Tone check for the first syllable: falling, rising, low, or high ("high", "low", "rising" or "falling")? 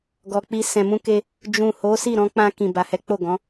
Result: low